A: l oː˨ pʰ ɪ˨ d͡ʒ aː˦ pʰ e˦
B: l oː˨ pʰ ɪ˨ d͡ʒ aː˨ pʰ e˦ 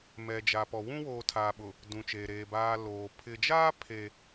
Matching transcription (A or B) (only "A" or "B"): A